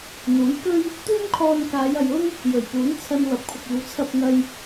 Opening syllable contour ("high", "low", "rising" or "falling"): rising